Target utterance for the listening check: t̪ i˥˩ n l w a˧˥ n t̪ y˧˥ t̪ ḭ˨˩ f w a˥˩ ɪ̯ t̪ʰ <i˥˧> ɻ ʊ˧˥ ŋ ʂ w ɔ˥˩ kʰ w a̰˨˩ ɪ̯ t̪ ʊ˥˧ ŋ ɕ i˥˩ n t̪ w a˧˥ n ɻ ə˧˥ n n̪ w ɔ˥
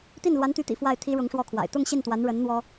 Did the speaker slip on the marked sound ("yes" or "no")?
yes